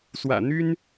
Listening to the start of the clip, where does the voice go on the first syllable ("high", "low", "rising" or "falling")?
low